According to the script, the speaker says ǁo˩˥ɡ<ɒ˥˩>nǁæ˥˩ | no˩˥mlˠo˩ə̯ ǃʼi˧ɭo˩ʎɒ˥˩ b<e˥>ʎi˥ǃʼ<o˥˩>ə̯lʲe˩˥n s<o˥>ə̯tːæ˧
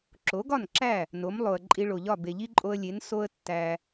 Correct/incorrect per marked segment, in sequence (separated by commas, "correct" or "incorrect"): correct, incorrect, incorrect, correct